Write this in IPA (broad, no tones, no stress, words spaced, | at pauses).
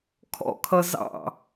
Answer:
kʰɔ̰kʰʌ zɑ̰